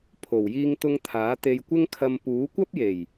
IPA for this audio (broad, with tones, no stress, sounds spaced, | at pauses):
pʰ o˨˩ w j iː˧ ŋ t̪ ʊ˧ ŋ t̪ʰ aː˨˥ t̪ e˧ j kʷ ɪ˥ ŋ kʰ ɐ˧ m p uː˨˥ kʷ ɐ˥ p̚ j e˨˩ j